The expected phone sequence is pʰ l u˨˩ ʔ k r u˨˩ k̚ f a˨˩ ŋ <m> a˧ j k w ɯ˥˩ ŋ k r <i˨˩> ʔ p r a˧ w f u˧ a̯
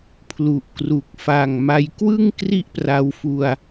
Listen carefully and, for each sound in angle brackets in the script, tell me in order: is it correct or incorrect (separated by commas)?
correct, incorrect